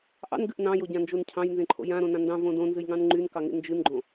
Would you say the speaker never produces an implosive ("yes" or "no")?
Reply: yes